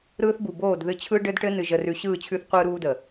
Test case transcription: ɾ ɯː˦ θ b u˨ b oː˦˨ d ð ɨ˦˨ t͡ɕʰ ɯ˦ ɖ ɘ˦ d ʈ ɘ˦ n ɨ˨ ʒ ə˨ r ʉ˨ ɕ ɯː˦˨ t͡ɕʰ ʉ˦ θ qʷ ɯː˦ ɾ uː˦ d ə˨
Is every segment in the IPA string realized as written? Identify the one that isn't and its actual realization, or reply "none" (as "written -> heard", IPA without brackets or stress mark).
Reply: none